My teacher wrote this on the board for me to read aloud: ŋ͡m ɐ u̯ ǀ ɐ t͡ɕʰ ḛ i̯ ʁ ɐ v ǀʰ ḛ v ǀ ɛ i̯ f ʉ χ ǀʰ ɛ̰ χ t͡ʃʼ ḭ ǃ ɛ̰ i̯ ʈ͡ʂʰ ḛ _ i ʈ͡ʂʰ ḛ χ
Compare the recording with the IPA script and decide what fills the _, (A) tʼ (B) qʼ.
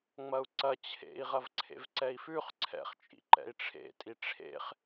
A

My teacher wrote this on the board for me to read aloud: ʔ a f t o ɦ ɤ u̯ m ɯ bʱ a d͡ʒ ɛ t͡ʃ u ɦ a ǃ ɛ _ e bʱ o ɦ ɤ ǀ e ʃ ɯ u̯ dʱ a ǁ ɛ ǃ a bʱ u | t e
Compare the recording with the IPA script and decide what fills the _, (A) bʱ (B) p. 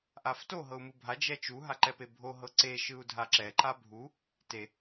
B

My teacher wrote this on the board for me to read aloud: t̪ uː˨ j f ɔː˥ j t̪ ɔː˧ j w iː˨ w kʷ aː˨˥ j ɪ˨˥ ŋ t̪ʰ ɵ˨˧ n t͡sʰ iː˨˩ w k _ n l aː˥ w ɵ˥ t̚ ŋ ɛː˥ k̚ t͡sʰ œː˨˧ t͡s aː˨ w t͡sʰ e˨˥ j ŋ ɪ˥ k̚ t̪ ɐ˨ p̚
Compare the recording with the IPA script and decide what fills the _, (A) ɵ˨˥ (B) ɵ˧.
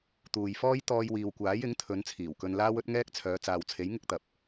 B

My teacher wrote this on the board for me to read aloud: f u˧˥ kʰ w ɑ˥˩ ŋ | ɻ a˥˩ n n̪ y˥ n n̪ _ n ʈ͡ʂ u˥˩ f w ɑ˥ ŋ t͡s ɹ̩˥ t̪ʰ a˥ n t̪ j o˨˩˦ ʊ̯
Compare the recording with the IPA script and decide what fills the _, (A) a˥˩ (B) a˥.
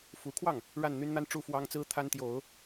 B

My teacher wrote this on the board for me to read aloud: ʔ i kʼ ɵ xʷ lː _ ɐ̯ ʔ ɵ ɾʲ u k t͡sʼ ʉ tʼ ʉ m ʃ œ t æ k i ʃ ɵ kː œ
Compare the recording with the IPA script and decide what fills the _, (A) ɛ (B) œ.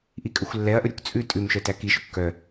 A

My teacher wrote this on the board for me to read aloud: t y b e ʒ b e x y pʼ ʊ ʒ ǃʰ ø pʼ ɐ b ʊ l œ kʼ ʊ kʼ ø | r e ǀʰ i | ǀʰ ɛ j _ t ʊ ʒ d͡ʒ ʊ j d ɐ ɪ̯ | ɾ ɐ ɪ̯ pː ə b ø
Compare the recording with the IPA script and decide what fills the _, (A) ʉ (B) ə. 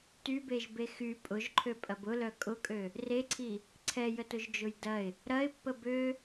B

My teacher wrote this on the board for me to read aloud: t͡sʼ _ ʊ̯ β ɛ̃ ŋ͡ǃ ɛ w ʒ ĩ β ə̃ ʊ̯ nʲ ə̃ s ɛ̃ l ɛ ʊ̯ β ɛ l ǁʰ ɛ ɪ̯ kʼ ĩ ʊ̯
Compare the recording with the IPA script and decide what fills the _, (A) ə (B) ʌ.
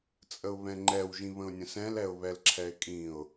A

